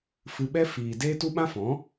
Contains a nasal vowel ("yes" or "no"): yes